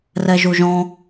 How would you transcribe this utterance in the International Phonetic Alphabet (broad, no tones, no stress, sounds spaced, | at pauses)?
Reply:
r ɛ ʒ u ʒ ɔ̃